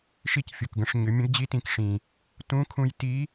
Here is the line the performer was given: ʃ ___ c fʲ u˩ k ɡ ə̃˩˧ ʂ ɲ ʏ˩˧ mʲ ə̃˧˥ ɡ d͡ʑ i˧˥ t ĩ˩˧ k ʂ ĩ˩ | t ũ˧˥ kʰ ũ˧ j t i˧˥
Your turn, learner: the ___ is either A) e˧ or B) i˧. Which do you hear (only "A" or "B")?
B